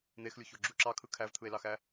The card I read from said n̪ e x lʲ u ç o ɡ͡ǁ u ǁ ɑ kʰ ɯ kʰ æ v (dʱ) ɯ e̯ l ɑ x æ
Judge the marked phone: incorrect: t̪ʰ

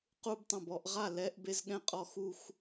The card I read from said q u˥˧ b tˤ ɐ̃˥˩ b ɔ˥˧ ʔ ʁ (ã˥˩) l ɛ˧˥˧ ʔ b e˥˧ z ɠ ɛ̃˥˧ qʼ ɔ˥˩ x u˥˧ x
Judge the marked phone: incorrect: a˥˩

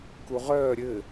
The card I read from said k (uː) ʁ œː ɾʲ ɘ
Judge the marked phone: incorrect: u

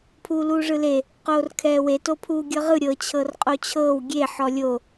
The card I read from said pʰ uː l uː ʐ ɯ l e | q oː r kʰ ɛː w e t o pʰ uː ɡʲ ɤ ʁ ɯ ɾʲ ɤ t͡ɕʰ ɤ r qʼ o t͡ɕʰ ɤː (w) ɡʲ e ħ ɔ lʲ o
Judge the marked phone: correct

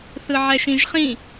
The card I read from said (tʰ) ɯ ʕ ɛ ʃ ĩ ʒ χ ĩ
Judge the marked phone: incorrect: θ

